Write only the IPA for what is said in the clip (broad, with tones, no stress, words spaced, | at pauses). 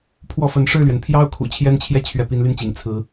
pʰwɔ˥˩fə˧˥n ʂɻ̩˥˩lɥɛ˩npʰjɑ˥ʊ̯kʰṵ˨˩ t͡ɕʰjɛ˥nt͡ɕʰjɛ˥˩ t͡ɕʰɥɛ˧˥pi˧˥nly˥˩nt͡ɕḭ˨˩ŋ t͡sʰɹ̩˧˥